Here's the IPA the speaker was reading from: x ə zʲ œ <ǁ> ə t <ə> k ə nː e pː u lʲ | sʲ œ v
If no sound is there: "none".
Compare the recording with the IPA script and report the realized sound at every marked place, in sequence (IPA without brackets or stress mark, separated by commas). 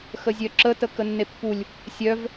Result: ǁ, ə